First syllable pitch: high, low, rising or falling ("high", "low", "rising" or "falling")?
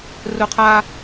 high